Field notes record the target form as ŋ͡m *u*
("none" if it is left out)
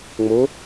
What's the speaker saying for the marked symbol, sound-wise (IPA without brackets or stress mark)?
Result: o